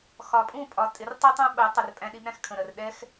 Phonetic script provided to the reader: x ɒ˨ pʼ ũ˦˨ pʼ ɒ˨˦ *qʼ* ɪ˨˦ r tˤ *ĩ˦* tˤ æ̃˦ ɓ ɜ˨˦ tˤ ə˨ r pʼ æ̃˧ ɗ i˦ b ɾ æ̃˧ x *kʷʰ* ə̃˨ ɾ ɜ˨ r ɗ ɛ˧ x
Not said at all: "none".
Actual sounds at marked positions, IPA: tʼ, i˦, kʰ

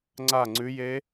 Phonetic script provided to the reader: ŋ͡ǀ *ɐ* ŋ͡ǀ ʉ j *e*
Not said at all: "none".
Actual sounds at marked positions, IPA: a, e

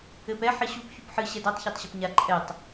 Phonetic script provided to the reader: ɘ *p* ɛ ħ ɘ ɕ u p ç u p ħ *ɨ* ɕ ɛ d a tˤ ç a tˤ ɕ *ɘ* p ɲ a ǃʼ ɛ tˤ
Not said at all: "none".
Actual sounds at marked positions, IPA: p, ɨ, ɘ

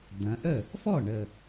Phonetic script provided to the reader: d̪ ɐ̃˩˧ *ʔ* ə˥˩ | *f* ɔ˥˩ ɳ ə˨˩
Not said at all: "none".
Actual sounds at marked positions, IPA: ʔ, f

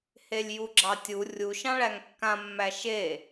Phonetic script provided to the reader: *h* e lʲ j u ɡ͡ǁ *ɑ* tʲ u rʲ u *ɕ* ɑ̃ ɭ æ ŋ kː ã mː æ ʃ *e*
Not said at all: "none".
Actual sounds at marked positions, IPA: h, ɑ, ʃ, e

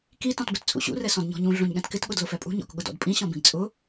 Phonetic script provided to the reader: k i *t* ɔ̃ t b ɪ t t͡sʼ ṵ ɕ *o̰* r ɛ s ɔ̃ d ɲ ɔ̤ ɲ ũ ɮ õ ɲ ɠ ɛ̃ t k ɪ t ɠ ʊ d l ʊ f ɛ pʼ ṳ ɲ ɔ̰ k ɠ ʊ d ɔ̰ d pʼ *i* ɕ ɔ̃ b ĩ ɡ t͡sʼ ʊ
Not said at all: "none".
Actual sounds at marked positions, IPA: t, ṵ, ĩ

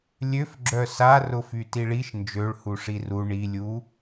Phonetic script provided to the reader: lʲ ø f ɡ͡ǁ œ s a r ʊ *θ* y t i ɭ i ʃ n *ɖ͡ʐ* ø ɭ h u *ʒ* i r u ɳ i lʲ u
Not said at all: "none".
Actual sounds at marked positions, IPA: f, d͡ʒ, ʂ

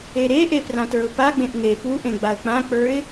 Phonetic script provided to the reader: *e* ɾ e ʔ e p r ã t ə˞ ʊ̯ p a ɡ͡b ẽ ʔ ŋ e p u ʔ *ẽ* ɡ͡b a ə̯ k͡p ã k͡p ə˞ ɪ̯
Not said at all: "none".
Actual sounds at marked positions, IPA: e, ẽ

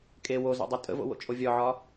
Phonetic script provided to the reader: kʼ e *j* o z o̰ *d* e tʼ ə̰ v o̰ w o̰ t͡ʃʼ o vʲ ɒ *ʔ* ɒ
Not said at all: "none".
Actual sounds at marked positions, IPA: w, dˤ, ʕ

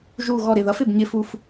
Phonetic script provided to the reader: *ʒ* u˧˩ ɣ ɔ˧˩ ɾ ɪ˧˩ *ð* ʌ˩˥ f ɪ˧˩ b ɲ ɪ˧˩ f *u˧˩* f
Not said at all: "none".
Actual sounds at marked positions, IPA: ʒ, ð, u˧˩

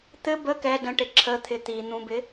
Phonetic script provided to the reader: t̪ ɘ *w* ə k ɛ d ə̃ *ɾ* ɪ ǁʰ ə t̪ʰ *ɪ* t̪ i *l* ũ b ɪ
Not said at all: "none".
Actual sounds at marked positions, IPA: b, ʈ, ɪ, n̪

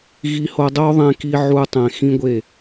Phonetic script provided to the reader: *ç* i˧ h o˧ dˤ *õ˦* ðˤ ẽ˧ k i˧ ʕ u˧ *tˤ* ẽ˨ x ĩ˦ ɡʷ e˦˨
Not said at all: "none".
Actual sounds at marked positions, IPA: ɣ, o˦, tˤ

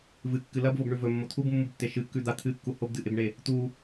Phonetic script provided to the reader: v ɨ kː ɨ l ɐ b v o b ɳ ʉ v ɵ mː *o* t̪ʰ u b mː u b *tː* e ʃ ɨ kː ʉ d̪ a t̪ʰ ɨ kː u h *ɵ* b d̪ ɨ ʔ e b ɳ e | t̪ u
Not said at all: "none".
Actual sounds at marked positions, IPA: o, tː, o

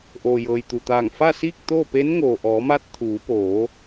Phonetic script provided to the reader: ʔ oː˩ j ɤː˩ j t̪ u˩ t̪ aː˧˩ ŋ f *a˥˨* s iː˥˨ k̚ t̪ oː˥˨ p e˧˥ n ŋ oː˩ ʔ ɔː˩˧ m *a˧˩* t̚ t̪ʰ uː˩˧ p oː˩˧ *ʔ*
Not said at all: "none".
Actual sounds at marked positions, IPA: a˥˨, a˧, none

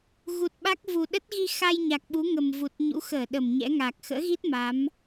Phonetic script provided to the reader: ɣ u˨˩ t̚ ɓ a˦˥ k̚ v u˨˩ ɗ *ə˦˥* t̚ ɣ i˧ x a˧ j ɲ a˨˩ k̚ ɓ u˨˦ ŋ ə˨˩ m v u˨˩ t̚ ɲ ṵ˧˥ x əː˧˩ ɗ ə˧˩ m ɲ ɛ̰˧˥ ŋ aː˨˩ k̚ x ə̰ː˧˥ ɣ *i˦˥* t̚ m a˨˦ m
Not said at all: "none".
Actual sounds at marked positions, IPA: ə˦˥, i˦˥

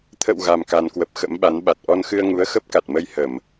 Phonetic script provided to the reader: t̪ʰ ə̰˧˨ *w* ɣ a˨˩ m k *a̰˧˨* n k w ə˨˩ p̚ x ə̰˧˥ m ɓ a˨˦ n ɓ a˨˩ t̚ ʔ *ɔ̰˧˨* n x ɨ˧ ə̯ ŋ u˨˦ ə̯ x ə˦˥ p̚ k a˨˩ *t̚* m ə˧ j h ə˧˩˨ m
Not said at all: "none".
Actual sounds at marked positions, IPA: w, a˨˩, ɔ˧, t̚

